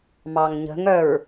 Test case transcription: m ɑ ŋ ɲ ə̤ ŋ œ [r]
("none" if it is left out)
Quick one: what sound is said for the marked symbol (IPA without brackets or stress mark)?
ɹ